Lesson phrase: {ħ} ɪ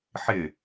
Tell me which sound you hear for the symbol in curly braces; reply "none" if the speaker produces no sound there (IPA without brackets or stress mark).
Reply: ħ